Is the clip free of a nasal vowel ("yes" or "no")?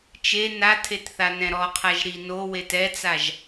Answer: no